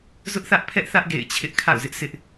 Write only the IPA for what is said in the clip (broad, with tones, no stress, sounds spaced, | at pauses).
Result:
z ʊ˦ ʔ θ ä˦ ʔ pʰ ɛ˦ ʔ θ ä˦ ʔ ɡ ḛ˦˨ ɪ̯ t͡ɕʰ ɪ˦ ʔ kʰ a̰˦˨ ʊ̯ z ɪ˦ ʔ sʰ ɪ˦ ʔ